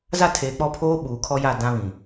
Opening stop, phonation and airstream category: aspirated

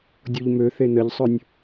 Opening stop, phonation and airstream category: plain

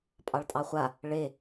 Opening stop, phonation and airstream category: ejective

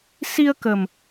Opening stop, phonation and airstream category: plain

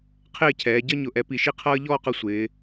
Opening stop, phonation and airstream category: aspirated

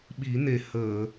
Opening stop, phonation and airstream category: implosive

